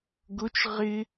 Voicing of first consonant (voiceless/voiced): voiced